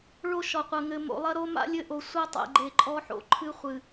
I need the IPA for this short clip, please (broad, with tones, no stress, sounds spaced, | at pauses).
ɭ o˦ ʃ ɔ˨ qʷ ɐ˨ ŋ ɘ˨ m o̰˨ lˠ ɐ˦ ɾ o˦ m a̰˦ lʲ ɘ˦ ʔ o˨ sʷ ɐ˦ tˤ ɛ̰˨ ɡ͡ǃ e˨ ǃʼ ɔ˦ ħ o̰˨ ǃʰ ɨ˦ χʷ ɨ˨